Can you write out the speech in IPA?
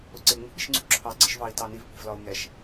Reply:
ʊ ǀ ɪ ŋ͡m ṳ ɓ i̤ ʃ ŋ͡ǀ ṳ ǁʰ ɑ ɡ͡ǀ ɪ ʃ v ɑ i̯ t ɑ n i v k͡p i̤ v l ɒ u̯ ŋ ɛ ʃ

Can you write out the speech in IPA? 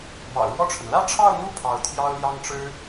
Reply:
m ɑ̰˨˩ ʊ̯ ɻ w ɔ˥˩ ʈ͡ʂʰ ə˩ n l ä˥˧ ʈ͡ʂʰ ɑ˥˧ ʊ̯ n̪ u˥˩ pʰ ɑ˧˥ ʊ̯ t̪ʰ j ɑ˥ ʊ̯ l j ɑ˥ ŋ ʈ͡ʂ ɻ̩˥

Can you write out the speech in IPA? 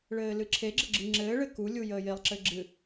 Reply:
ɭ ɘː l ɨ ǁʰ e ɡ͡ǁ ə ɡ͡ǁ ɨ ŋ͡ǁ ɘː ɭ ɘ k u lʲ u j əː j e lˠ ǁ ɘ ɡ͡ǁ ɨ

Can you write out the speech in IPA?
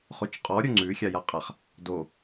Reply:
χ o t͡ʃ qʼ ɔ ɾʲ o ŋ͡ǀ ʉ xʲ a j a qʼ a χ | d o

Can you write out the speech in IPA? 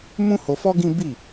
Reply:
m ũ˦ h o˧ f ɔ˦ ɡ ĩ˦ b i˦˨

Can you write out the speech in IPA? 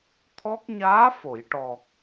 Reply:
t̪ʰ ɔ˦˥ k̚ ɲ aː˧˥ f o˨˩˨ j ʈ ɔ˨˩ k̚

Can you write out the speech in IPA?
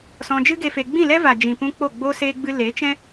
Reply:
s ɔ̃˧ d͡ʒ ɨ˦ ɡ e˧ f e˧ ɡ͡b ĩ˦˨ l ɛ˦ v a˨ d͡ʒ ĩ˨ p ũ˧ k͡p o˦˨ ɡ͡b o˦ s e˧ ɡ͡b ɨ˧ l e˨˦ t͡ʃ ɛ̃˦

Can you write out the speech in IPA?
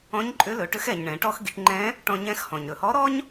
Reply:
ɔ̃˧˥ ɲ ǃʼ ʏ˧˥ l ɵ˩˧ ʈ ʏ˧˥ x ɛ˩ ɲ ɳ ɛ̃˩˧ ʈ ɔ˥ x ɡ i˩˧ ʈ ŋ͡ǃ ɛ̃˧˥ | ʈ ɔ̃˧ ɲ ɛ̃˧˥ x h ɔ̃˩ ɲ ɾ ɵ˩ h ɔ˧˥ ɾ ɔ˥ ɲ

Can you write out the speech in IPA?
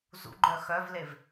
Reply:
z ṵ ɡ͡ǃ œ x œ v l e v

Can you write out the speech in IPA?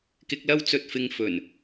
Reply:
k ɪ˧ k̚ l ɐ˥ w t͡s ɵ˧ t̚ f ɪ˧ ŋ f ɵ˨˩ n

